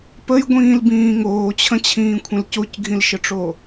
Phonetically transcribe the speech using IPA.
p ə j ɡʷ ĩː l b ĩː ŋ oː t͡ɕʰ ə̃ t͡ɕʰ ĩː kʷʰ ə̃ l c o c ɡʱ ĩ l ʃ ə ʈ͡ʂ o

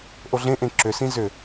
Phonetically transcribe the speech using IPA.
ʔ o ɮ ẽ ʔ ẽ ǁ ʏ s ĩ z ʏ

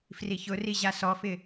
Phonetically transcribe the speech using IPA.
f r i ç ʊ r i ʑ a s ɔ f ɪ

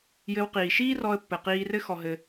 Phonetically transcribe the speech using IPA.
j ɘ˧ w q iː˩ ʃ iː˥ r ɔ˧ ə̯ pː ɘ˩ q iː˧ r ɘ˥ x ɔ˧ ɦ ɘ˧

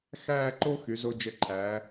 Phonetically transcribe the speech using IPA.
x æː˥˧ ǃ o˥ x y˩˧ z o˧ d͡ʒ ə˧˩ ǃʰ æ˩˧

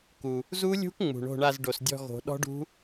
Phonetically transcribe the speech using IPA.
k u˩ | z u˦˥ lʲ ṳ˦˥ k ŋ͡m ṳ˩ ɳ o̤˦˨ ɳ a˦˨ z ɖ o˩ s dʲ ɔ̤˦˨ ɣ o̤˨˩˦ ɗ ɔ̤˦˥ ɖ ṳ˦˥

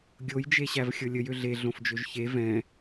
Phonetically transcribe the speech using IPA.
ɡʲ o j d͡ʒ e ɕ æ v xʲ ɤ lʲ ə j ø ɮ e ɮ õ f d͡ʒ ø ʒ ç e v ɛ̃

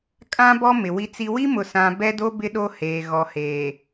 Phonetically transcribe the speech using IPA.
kʼ ã˦ b ɔ˦ m ɪ˨ w i˦ t͡s i˦ w i˦ m ʊ˨ s ã˨ b ɛ˦ d o˦ b ɪ˦ ɗ o˦ h eː˨ ɣ ɔ˨ h eː˨

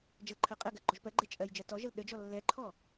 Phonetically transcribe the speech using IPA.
d͡ʒ ə l ǃʰ ɜ qʼ ɜ ɡ ɜ ɡ͡ǃ ɔ ʒ p ɜ ɡ͡ǃ ɛ t͡ʃʼ ɜ j d͡ʒ ɜ t ɔ ʒ ə l ɗ ə d͡ʒ ɔ lː ɛ ǃʰ ɔ

